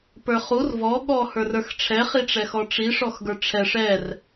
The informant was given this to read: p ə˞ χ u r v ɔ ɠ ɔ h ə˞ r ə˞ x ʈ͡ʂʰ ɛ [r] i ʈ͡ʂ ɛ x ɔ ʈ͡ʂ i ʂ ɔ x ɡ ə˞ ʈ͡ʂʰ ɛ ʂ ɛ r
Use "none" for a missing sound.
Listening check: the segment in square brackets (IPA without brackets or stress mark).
χ